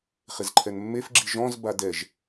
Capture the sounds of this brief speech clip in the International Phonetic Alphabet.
χ ɪ z ǃʰ ɛ n mː e f ɡ͡ǁ i ʒ ɔ̃ z b a d ɛ ʒ

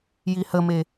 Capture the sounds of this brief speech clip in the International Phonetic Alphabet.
j i h ə m e

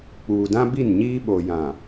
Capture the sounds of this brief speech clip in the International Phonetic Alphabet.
k͡p uː˨ d ã˦ b i˦˨ n ɲ iː˦ ɓ o˨ j ã˨

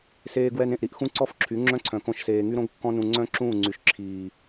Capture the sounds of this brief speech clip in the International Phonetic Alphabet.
s eː˧ ɡ w ɛ˧ n ẽ˨ ʔ ɾ i˧ ʔ x ũ˦ ǀ ɔ˦ f ǁʰ y˨˦ ŋ͡ǁ œ̃˦ ǀʰ œ̃˨ k õ˧ ʃ s eː˨ ŋ y˦ ɾ õ˦ ɡ kː ɔ̃˦ n ũ˧ ŋ͡ǀ œ̃˦ ǁ ũː˦˨ ŋ͡ǀ y˨ ʃ ǁʰ iː˨

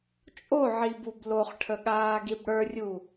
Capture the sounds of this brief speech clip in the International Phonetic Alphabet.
t͡ʃʼ o ʕ i b u b l o χ ʈʰ ə ɠ aː ɡ i b ɽ ə˞ rʲ u

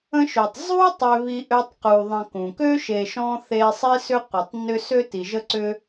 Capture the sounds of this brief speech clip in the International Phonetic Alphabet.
ə̃˥ ʃ ø˨ tˤ zˤ u˥ tˤ ʏ˦ β i˦ ʔ ø˦ tˤ q u˨ ðˤ ə̃˨ k ũ˩ k ø˥ ʃ e˨ ʃ ɔ̃˥ θ e˦ sˤ i˥ s ʏ˥ qʷ e˨ tˤ n ʏ˥ s ø˥ t i˨ ʒ ə˥ ǀ ʏ˥

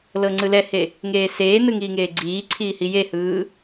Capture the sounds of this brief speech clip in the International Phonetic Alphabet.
l ɤ ŋ͡ǀ ɯ l ɛ h e | ŋ eː s eː n ɯ ŋ iː ŋ eː ɡ͡ǀ iː ǀʰ iː h i j e h ɯː

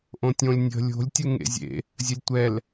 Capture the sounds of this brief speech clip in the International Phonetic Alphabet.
ʔ õ tʲ õ lʲ nʲ ə̤ lʲ o̤ lʲ tʲ u ŋ ḛ zʲ ḛ | zʲ ə lʲ tʷ ɛ l

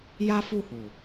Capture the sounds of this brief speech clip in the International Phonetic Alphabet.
j a˦ f u˦˨ h u˨

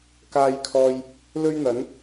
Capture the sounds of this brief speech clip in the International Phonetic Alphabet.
k aː˥ j kʰ ɔː˥ j | l ɵ˥ ɥ n̪ ɐ˨˥ n

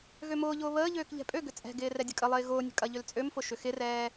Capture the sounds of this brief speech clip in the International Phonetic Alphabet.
ɣ ø m ʊː ʎ ʊː β əː ʎ øː k ʎ ɛ̤ pʼ ø ɡ ʏ t͡sʼ ɛ̤ ɡ ɪː r ɛ dʲ ɐ kʼ ə lˠ ɪː ɣ ʊː nʲ ə̤ kʼ ɐ ʎ ʏ l t͡sʼ ø m f ʊ ʃ ʏ x ɪ r ɛː

